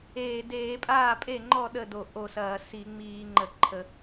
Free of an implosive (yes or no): no